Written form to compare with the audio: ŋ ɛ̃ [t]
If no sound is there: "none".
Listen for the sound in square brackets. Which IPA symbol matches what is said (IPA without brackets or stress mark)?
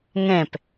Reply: p